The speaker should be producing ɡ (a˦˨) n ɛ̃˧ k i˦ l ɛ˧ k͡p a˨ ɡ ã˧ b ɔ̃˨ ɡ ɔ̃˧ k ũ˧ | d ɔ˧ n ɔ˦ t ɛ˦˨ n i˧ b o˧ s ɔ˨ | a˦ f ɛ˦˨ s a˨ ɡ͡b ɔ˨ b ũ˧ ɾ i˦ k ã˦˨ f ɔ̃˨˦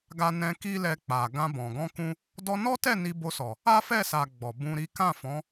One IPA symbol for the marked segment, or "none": a˧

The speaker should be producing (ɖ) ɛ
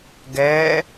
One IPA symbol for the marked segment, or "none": ɡ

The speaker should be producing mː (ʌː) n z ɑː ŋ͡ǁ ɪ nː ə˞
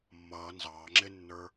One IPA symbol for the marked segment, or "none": ʌː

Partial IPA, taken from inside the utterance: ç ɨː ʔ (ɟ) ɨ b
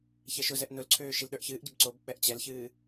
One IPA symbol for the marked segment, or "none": ɟ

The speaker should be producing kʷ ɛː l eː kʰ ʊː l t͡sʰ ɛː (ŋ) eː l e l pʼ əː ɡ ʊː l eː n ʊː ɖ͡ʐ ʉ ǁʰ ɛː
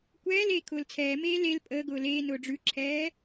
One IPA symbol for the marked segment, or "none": m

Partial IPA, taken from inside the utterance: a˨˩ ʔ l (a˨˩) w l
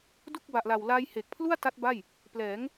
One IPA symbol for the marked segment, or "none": a˨˩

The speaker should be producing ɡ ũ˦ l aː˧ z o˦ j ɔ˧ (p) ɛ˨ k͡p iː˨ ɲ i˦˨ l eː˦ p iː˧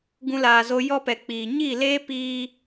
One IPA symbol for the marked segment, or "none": p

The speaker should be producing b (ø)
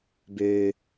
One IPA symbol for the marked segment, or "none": ø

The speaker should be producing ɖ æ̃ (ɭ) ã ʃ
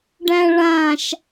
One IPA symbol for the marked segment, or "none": ɭ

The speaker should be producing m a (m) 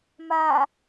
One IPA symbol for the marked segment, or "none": none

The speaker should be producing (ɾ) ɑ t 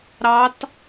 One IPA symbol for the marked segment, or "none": ɾ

